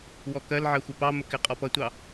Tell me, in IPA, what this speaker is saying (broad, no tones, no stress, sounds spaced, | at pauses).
w ɔ k ɜ l ʕ ɜ xʷ ɪ p ɑ m ə k ɪ qʼ ɔ p ʌ tʷ ɑ